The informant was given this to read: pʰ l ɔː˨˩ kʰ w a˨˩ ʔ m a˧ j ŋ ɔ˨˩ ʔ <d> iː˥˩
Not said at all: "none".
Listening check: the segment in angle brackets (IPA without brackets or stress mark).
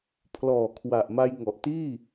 t